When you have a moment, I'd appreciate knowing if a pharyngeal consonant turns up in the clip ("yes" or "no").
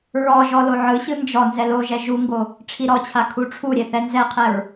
yes